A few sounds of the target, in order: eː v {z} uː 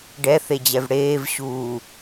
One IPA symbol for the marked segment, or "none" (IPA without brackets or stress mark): ɕ